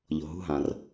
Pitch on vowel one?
low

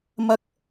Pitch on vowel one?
high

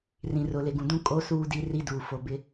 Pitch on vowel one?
low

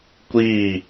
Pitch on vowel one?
falling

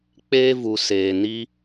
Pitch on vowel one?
high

